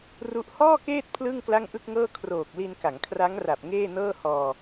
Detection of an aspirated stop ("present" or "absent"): present